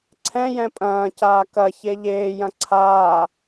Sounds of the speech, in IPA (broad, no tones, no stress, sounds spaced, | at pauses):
ǀʰ ɛ̃ j ɛ̃ pʼ ɐ̃ː c aː k ɐ ç e ʎ eː j ɐ̃ ǀʰ aː